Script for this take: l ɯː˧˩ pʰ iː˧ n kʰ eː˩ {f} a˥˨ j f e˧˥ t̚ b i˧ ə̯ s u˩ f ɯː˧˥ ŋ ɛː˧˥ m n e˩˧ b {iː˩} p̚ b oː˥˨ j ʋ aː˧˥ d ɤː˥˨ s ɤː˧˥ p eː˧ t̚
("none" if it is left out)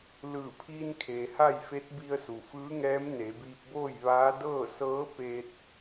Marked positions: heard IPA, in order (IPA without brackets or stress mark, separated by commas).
h, iː˧